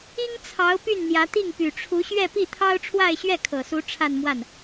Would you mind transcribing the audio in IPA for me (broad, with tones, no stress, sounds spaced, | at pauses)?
i˥ ŋ t͡sʰ ɑ˧˥ ʊ̯ p y˥˩ n n̪ j ä˧˥ t̪ i˥˩ ŋ p y˨˩ ʈ͡ʂʰ u˧˥ ɕ ɥ ɛ˥˧ p i˥˩ t̪ʰ ɑ˥ ʊ̯ ʈ͡ʂʰ w a˥˧ ɪ̯ ɕ ɥ ɛ˥˩ kʰ ɤ˨˩ s u˧˥ ʈ͡ʂʰ a˥˧ n m w a˥˩ n